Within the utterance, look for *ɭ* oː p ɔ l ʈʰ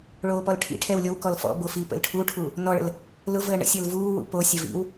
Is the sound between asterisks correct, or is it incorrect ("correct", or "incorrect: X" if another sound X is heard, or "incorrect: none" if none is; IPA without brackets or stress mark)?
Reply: correct